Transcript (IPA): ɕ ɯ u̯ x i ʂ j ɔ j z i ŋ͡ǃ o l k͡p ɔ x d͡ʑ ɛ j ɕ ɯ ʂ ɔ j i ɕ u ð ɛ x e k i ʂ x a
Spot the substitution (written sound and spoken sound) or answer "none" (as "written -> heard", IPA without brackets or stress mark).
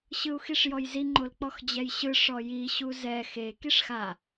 ð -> z